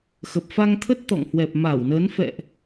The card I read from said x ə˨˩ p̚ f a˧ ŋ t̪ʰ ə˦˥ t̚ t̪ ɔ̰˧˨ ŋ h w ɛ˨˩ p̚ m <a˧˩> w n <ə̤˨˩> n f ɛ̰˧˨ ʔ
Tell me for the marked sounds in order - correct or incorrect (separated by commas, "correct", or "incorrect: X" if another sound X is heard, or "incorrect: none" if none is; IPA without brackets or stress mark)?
correct, incorrect: ə˨˦